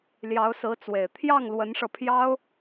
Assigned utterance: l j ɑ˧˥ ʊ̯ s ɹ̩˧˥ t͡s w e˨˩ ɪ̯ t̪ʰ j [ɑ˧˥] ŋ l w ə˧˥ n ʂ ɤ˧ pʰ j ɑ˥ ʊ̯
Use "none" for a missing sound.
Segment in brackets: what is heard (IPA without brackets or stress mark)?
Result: ɑ˥˩